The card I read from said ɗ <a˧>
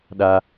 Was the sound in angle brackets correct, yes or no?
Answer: yes